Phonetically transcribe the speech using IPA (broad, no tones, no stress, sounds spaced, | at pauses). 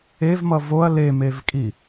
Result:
e v m ʌ v o ɐ̯ l e m e v kʼ i